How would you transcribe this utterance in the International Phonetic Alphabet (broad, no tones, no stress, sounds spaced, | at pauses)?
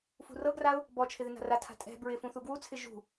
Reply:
f ṳ r ɤ ɡ r a ʊ̯ | b ɔ t͡ʃʰ ɪ ð ɪ n a̤ r a tʰ a̤ tʼ ɛ̤ b ɹ ɪ f ũ θ u ɡ w u t͡sʰ ɪ ʒ ṳ